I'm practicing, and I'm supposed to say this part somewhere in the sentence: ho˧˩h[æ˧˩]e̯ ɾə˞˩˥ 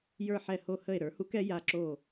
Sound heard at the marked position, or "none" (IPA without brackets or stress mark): ə˧˩